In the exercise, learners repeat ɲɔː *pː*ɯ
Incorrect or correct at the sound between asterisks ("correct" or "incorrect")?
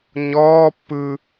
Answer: correct